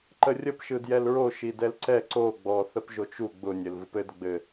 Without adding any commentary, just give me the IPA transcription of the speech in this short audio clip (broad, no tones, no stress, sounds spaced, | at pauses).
ǃ ə rʲ ə p ʃ ɯ d j ɛ l ɹ o ʃ i d ɛ l ǀ ɛ ǀ o ɡ͡b ɔ θ ə p ʒ o t͡ʃ u ɡ͡b ʊ nʲ ɘ l v ɯ p ɘ d ɡ͡b ɘ